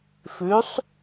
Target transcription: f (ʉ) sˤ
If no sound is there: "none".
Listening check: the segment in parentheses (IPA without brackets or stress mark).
ʉ